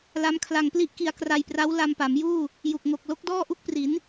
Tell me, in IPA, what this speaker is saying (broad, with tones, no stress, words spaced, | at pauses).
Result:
la˦˥mkʰla˧ŋpli˥˩ʔki˧a̯ kra˧jpra˦˥w la˧mpa˩˦mjuː˥˩ | ju˨˩k̚ŋo˨˩k̚ lo˦˥k̚dɔː˥˩ʔu˥˩k̚pri˩˦n